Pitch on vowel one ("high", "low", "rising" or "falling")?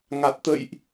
low